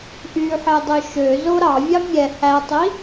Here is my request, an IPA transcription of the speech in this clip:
ʔ y ħ e dˤ ø ʃ ø z o ɾ ɑ vʲ ɑ mʲ ɛ h æ tˤ i

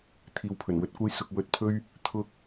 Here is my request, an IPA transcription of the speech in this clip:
t̪ʰ iː˨˧ w pʰ ɵ˨˩ n w ɵ˨˥ t̚ kʷ ɐ˥ j s ʊ˧ k̚ w ɵ˧ t̚ pʰ ɵ˥ ɥ | t̪ʰ ʊ˧ k̚

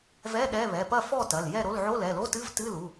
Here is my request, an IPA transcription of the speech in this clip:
v ɛ˧˥˧ ɗ ɛ˧˥˧ β ɛ˩˧˩ p ɐ˥˨ f ɔ˥˨ t ɐ˩˧˩ l j ɛ˥˨ ɾ o˧˥˧ l ʕ o˧˥˧ l ɛ˩˧˩ l o˧˥˧ t ɨ˧˥˧ v t ɨ˧˥˧ l u˩˧˩

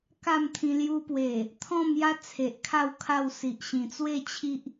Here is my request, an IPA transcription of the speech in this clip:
k a˥˧ m t̪ʰ ĩ˧ l j u˧ p w e˨˩ | t̪ʰ ɔ̃˥˧ m j a˦ t͡sʰ e˨ ʔ kʰ a˥˧ w kʰ a˥˧ w s i˨ ʔ ɕ ĩ˨˩ t͡s w e˥˧ t͡ɕʰ i˦ ʔ

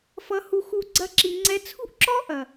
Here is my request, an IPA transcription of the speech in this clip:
f ʌ˧ h u˧ x u˧ ɡ͡ǀ ɐ˦ ǁ i˧ ŋ͡ǀ ɛ˧ t͡sʰ ṳ˦ ʔ ǁ ɔ˦ ʔ ɐ˨

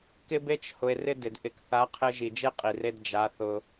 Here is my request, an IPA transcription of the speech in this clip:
k ɪ˦ b e˦ t͡ʃ h ʊ˨ e̯ r ɪ˦ d ɪ˨ d ʔ ɪ˨ k θ a˨˦ qʰ ɪ˧ ʒ i˨ d͡ʒ e˦ qʼ i˨ r e˧ d d͡ʒ a˨˦ θ ʊ˧

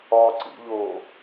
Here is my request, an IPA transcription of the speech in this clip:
ɒ ǀ ḭ ʎ oː

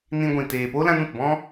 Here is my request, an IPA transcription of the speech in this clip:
n ĩ˧ ɡʷ ĩ˨ t eː˨ p o˦ l ã˦ n ũ˨ t b ɔ̃˦

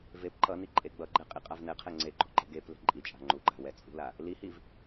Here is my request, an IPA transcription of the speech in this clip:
v e p ǃ ʌ n i ǃʼ e ɡ͡b ʌ ɡ͡ǃ ɛ qʼ i qʼ a v n ɛ qʰ ɛ ŋ͡ǀ e ɡ͡ǃ o̤ ǃ e̤ ɡ e p l e̤ ǃʼ i t͡ʃʼ a̤ ŋ͡ǃ u ɡ͡ǃ a̤ w ɛ t͡sʼ ṳ l a | l i h i v

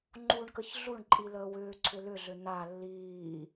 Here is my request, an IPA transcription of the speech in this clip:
ŋ͡ǃ u ɳ k ə ç ɮ u ɳ ǃʼ i l əː w ʏː ǀʰ ʏ l ʏ ɮ ʏ n a lː iː

